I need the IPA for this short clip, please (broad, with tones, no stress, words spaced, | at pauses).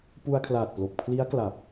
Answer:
pu˧a̯kʰlaː˨˩t̚plo˨˩k̚ pʰli˦˥a̯ kla˨˩p̚